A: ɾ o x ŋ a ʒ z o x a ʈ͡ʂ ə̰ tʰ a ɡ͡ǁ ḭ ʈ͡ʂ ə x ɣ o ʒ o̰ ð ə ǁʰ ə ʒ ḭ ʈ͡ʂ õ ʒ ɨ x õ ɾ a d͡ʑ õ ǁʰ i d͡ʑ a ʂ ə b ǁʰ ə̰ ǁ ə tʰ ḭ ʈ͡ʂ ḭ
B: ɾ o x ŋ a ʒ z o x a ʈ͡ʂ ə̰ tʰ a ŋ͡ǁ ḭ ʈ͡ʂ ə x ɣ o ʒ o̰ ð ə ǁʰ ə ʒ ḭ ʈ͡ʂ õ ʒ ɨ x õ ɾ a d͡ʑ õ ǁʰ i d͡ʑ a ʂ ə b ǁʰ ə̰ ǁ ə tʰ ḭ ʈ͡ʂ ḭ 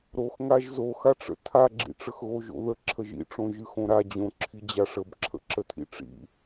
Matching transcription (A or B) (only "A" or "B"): A